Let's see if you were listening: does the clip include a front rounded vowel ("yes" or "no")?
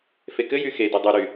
yes